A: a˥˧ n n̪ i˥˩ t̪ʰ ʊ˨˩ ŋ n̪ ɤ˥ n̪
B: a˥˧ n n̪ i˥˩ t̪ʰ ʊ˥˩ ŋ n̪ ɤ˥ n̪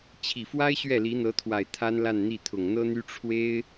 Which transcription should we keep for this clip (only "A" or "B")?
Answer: A